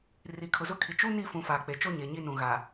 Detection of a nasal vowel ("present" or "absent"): present